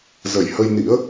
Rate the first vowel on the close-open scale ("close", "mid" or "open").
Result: mid